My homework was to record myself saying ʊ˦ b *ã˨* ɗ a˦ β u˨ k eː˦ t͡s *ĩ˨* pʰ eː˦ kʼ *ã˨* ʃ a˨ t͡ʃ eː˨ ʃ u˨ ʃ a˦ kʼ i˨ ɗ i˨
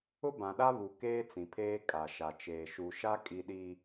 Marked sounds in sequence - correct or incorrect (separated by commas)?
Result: correct, correct, incorrect